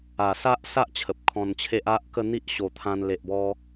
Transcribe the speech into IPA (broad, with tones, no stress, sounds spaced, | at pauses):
a˨˩ s a˦ ʔ s a˦ ʔ t͡ɕʰ ə˨ p̚ kʰ ɔ̃˧ n t͡ɕʰ e˦ ʔ a˦ ʔ k ə˥˧ n̪ i˦ ʔ ɕ o˨˩ t̪ʰ ã˧ n l e˨ ʔ b ɔ˧